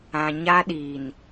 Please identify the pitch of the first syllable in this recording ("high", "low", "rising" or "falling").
low